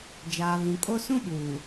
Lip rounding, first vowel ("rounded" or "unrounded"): unrounded